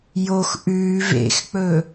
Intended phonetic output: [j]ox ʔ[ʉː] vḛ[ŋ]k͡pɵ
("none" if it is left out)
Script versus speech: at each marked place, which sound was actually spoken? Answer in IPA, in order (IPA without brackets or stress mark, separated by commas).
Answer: j, ʉː, x